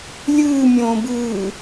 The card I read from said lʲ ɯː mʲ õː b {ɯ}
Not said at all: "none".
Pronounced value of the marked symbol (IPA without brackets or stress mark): ɯː